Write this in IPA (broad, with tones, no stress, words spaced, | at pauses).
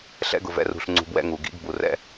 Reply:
ɬɛ̰˧ɡʊ˨vɛ̰˧rṳ˨ɬ ŋ͡ǀṳ˧bwɛ̰˦ŋu˨ ɡḭ˨˦ɡbu˨rɛ̰˦